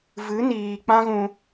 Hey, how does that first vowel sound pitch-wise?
rising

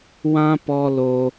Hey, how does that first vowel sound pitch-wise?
high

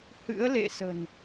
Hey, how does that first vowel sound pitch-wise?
rising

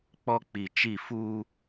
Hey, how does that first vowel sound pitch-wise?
high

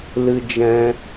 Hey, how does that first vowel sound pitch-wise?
high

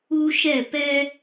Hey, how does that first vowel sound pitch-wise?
high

